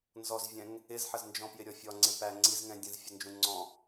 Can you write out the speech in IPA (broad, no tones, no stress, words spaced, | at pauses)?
nzɔzvʲɛ̃ŋ | ɪzħəz nd͡ʒɔ̃pjɪɾʲɔfʲɔ ŋ͡ǀɪpæ ŋ͡ǀizŋɛ̃ dʲə̃zfʲənd͡ʒũ ŋ͡ǀɔ̃